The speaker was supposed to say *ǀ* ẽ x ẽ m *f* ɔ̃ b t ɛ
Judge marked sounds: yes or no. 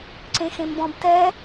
yes, no

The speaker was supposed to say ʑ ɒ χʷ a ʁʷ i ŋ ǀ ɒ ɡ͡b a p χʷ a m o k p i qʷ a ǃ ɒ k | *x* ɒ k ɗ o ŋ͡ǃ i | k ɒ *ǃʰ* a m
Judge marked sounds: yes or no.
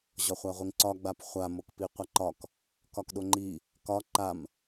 no, no

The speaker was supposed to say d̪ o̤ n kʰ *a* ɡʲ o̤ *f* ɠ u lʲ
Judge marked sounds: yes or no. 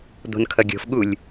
no, yes

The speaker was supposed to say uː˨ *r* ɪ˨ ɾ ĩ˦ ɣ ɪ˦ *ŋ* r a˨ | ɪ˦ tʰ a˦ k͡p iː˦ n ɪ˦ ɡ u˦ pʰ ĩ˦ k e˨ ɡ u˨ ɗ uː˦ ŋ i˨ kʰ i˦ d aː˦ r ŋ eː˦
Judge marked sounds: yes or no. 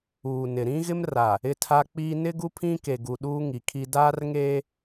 no, no

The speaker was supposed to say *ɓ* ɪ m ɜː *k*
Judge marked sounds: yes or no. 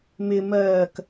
no, yes

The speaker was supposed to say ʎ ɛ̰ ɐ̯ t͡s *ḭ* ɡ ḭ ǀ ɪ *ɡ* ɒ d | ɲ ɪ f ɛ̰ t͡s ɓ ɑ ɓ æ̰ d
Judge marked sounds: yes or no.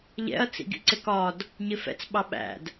yes, no

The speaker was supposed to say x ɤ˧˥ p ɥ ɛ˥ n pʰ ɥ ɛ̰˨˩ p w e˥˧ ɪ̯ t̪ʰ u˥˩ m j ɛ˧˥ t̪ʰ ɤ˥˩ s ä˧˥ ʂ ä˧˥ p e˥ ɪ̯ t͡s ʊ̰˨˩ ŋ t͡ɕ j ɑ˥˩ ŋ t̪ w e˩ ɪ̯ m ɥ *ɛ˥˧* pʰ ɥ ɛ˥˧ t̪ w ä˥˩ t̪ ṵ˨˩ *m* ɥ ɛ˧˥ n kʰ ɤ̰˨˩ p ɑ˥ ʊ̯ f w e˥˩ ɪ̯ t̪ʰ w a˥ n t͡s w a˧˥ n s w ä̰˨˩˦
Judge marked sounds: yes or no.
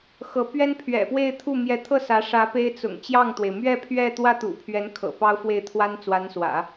yes, no

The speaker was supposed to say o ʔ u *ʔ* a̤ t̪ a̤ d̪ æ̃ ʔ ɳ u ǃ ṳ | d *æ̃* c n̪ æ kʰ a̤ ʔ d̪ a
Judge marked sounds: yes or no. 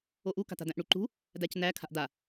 no, no

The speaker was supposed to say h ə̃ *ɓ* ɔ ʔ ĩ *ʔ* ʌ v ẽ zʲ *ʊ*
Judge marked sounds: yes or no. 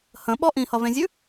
yes, no, no

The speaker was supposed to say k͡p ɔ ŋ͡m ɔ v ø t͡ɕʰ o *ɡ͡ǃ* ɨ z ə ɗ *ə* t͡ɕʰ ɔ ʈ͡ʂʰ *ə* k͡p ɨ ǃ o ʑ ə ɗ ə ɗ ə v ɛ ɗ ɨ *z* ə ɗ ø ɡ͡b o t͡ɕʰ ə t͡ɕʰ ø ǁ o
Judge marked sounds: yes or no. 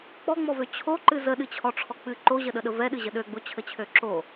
no, no, no, no

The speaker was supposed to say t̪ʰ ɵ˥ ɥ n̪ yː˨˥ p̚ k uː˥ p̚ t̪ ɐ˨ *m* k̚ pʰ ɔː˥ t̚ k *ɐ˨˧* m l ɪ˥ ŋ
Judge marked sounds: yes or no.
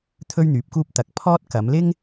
no, yes

